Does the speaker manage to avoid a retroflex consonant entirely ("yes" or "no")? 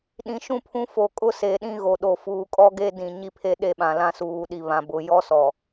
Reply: yes